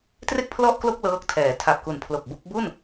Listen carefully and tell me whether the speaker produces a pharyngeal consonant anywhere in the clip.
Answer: no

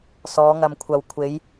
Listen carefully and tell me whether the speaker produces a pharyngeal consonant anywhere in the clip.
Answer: no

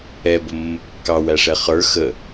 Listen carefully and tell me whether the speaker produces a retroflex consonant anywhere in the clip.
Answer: yes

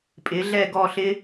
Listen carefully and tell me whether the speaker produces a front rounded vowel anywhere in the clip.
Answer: no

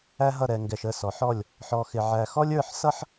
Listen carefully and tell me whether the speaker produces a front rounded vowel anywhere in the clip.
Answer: no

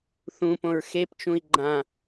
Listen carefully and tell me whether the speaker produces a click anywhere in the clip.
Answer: yes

